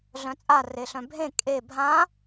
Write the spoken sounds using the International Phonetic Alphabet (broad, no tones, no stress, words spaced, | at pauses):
ɮœ̃t͡sʼa reɬœ̃bʱẽ kʼe bʱã